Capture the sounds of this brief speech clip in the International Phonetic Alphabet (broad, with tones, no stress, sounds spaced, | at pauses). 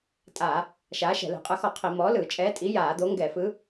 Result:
tʼ a˧˩˧ | ʃ aː˨˥ ʃ ɛ̤˧˩˧ l ɛ̤˧˩˧ qʼ ɯ˧˩˧ x ɔ˧˩˧ qʰ i˧˩˧ m ɔː˨˥ l ɯː˧˩˧ t͡ʃʼ ɛː˨˥ tʼ i˨˥ j aː˧˩˧ d̪ o˨˥ ŋ ɡ ɛ˧˩˧ f ɯ˨˥